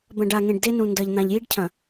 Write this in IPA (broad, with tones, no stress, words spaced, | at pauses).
bɐ̃˨ɖa˨ŋẽ˨ɖ de˦nũ˨ndɐ˨ʎ n̪ã˨ʎji˦ɖcʰɐ̃˨